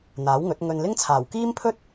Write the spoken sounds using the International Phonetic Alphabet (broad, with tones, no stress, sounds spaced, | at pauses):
n̪ aː˨˥ w ŋ ɵ˨˥ t̚ ŋ ɵ˧ n l ɪ˥ ŋ t͡sʰ aː˨˩ w k iː˥ m pʰ ɵ˥ t̚